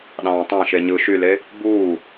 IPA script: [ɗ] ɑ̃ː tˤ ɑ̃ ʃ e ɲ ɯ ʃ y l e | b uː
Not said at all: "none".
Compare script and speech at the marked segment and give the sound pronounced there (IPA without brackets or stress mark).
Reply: ɗ